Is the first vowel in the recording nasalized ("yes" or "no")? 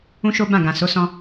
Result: yes